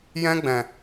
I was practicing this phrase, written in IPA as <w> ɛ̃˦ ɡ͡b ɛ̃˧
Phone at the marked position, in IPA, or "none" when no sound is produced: j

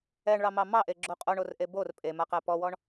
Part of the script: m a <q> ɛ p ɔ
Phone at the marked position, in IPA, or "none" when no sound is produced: q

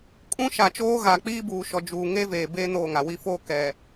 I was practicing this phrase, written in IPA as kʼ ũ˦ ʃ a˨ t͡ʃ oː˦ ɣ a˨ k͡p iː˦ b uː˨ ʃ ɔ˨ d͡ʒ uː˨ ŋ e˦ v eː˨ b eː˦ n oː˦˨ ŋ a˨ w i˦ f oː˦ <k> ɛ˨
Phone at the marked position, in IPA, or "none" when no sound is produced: k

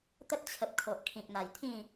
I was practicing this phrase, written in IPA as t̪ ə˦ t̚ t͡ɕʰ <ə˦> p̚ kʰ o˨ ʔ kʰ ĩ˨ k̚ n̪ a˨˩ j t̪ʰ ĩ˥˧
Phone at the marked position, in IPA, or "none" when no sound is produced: ə˨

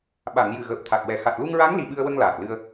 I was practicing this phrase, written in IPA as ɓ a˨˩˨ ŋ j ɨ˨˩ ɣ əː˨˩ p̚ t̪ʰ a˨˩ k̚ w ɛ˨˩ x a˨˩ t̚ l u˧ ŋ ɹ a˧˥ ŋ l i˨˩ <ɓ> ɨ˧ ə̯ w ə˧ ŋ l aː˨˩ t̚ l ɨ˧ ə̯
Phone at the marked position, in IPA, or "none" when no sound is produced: ɓ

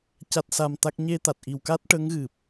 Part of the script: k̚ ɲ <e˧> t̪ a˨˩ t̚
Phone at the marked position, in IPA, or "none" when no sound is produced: e˧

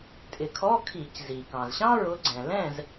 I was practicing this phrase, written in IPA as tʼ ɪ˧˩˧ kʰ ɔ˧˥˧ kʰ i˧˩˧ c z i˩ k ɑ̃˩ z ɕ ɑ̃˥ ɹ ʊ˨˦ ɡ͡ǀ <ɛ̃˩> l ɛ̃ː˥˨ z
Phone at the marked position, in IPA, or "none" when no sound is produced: ɛ̃˩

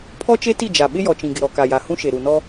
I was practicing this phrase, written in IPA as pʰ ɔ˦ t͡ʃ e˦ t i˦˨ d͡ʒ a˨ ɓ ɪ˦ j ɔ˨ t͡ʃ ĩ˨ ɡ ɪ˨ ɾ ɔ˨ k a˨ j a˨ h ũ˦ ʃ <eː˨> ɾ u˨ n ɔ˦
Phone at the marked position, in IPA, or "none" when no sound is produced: e˨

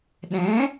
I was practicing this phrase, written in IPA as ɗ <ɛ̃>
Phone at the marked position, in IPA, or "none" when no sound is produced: ɛ̃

